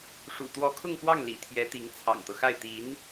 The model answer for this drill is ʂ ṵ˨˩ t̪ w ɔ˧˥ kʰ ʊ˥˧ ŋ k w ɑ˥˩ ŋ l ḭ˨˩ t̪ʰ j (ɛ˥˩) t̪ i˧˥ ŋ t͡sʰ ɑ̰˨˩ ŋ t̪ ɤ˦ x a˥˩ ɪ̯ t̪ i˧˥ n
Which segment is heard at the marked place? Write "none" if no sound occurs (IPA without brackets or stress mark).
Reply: ɛ˧˥